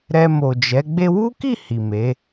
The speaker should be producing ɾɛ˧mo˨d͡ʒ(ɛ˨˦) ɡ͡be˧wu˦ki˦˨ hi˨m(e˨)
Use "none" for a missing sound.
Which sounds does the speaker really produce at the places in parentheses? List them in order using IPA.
ɛ˨˦, e˨˦

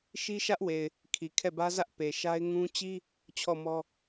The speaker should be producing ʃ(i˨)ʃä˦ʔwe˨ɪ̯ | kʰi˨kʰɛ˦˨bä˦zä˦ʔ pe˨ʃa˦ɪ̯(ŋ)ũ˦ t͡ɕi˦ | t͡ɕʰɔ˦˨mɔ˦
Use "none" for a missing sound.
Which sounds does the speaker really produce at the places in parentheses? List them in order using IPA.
i˦, ŋ

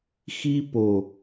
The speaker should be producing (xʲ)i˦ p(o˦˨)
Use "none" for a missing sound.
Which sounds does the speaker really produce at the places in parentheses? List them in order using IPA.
x, o˨

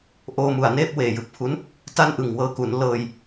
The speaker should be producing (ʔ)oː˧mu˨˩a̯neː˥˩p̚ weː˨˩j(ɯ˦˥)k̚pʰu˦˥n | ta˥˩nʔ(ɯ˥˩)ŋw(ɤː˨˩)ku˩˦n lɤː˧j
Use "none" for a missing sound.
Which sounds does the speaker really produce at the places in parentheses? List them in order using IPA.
ʔ, ɯ˨˩, ɯ˨˩, ɤː˧

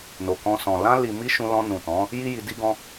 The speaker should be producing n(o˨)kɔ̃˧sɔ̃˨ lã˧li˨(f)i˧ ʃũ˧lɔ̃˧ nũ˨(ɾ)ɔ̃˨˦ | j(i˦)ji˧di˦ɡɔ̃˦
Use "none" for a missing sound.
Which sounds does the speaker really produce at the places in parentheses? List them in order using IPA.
o˨, m, t, i˦

